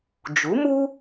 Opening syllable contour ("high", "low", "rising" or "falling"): rising